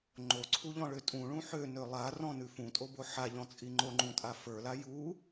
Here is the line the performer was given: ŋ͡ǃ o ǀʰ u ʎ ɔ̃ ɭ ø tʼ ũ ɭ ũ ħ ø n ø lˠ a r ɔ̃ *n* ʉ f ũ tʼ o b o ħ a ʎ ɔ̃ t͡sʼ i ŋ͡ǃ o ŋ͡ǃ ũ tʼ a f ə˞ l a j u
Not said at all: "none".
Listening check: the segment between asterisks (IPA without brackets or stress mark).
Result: n